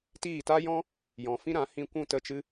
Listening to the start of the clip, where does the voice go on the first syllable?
falling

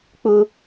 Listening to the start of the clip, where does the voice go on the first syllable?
high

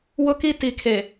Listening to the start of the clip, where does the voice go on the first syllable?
high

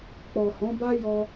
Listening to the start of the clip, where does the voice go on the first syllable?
low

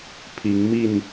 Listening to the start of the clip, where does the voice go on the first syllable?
rising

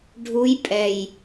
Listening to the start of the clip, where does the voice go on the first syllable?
rising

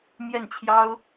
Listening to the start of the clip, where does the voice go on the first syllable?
falling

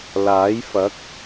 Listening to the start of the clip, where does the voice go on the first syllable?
rising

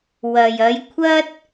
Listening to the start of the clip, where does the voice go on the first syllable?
low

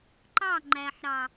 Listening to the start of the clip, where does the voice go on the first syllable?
falling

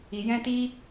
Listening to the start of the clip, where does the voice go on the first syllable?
low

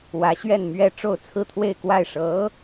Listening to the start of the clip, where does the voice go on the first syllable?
rising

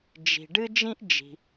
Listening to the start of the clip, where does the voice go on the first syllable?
low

